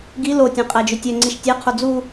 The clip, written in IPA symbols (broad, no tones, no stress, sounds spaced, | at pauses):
ɡ i l o tʲ æ̃ qʼ æ d͡ʒ ø tʲ œ ŋ͡ǀ i ʃ tʲ æ qʰ o d͡z u